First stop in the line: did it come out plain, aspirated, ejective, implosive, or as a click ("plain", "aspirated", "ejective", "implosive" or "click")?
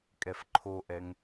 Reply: ejective